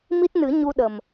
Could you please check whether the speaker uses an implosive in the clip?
yes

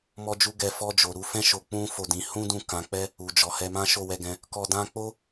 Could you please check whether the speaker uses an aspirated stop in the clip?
no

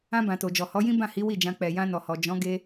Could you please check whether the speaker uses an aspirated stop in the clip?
no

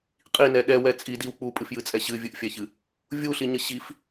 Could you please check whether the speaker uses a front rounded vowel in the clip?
no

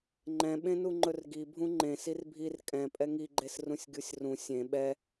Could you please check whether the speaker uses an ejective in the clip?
yes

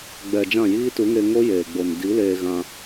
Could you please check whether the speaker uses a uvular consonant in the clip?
no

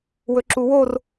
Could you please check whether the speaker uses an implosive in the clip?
no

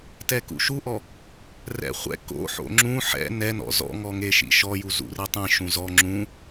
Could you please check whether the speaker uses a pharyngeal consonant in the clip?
yes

